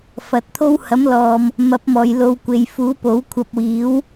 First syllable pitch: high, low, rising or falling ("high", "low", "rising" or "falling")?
rising